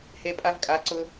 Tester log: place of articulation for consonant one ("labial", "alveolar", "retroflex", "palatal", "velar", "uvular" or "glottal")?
glottal